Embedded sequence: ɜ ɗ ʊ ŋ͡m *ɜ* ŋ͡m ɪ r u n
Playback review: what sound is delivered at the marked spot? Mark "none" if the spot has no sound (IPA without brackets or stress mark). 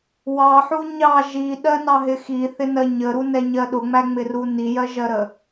æ